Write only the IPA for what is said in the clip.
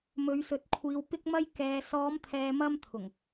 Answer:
mɵ˨˧ɥsɵ˨˥t̚kʷʰiː˨˧w pɪ˥k̚mɐ˥j kɛː˨sɔː˨˧mt̪ʰɛː˨mɐ˧m t̪ʰʊ˨˩ŋ

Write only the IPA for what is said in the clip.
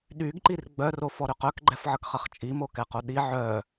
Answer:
ɗyɡǃir ɡ͡bœrofɔɾʏ qœkɡ͡ǃɛfʕəkχɐχ t͡ʃʼimokɛqo ɗi ʕœ

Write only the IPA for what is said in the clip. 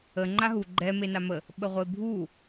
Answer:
ə ŋ͡ǃaɦu ɡ͡ǃɛ menamə | ɓəʁʷebʱu

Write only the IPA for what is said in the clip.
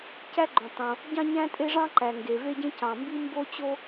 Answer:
cæ˥ɡ͡ǃõ˩ tˤõ˩ | ɟɑ̃˥ɲæ̃˥tʼe˥ʐɑ̃˥ ǃæ˩ŋɡe˩ ve˥ɟẽ˥ cɑ̃˩ mbi˥mbo˥ t͡ɕo˥

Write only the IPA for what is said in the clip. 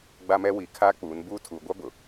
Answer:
ɡ͡ba˦mɛ˦ wi˨ kʰaː˦k͡puː˨˦n buː˦ tʰuː˨ɡʷa˦ bʊ˨

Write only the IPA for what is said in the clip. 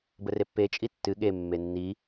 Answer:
bərepːet͡ʃʼi tːɨ ɠemːe nːi

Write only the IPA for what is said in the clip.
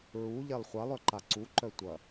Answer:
ɹu ʎɛlˠχʷalˠœ ǃaǀuǃœ tʷɐ

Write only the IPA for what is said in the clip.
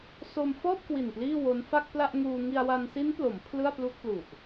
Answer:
so˧mfɔː˥˩p̚kwi˨˩n pliː˥˩wo˦˥n fa˥˩k̚pla˥˩ʔŋuː˧ ŋi˧a̯wa˧n si˦˥nplo˩˦m pʰlɯ˥˩a̯plu˥˩k̚lu˨˩ʔ

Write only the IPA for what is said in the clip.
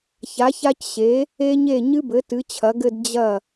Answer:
ça˩˥ça˦˥cɕe˩˥ | e˦˥ɲe˥˩ ɲɨ˦˥bɘ˩˥ tɨ˩˥t͡ɕʰɐ˩˥ɡɘ˥˧d d͡ʑɐ˥˩

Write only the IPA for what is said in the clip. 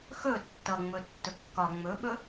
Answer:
xɵ tːʌŋ͡mɵ tːɵkːɒ ŋ͡mɵɓɵ

